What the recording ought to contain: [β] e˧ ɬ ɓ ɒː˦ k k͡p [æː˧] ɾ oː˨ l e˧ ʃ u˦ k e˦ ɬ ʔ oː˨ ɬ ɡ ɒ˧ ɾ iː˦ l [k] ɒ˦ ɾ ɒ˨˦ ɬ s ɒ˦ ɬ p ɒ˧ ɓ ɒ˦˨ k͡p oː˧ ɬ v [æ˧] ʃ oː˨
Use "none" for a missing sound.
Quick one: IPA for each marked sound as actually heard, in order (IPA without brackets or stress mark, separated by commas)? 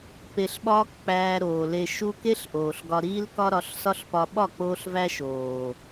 p, æː˧, k, æ˧